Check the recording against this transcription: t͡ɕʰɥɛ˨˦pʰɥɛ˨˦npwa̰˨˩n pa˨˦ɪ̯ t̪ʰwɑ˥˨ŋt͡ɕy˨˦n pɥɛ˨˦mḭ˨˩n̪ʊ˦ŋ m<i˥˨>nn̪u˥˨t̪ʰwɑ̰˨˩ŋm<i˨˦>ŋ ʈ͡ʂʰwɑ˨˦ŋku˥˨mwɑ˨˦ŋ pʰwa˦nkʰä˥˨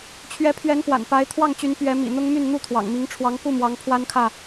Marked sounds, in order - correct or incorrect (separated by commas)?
incorrect, correct